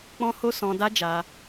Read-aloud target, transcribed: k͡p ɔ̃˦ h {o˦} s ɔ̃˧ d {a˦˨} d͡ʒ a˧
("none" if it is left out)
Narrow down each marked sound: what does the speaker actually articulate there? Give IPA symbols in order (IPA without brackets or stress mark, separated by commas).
o˦, a˦